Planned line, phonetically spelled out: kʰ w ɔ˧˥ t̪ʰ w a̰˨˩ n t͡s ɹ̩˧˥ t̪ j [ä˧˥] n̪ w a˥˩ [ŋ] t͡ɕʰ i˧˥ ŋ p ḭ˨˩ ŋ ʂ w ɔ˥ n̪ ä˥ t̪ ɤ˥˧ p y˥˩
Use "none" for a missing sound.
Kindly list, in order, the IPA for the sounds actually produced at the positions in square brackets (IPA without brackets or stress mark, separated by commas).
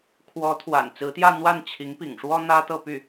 ä˥˧, n